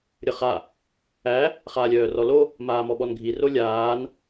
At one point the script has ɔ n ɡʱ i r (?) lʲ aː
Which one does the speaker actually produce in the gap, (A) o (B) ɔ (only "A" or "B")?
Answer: A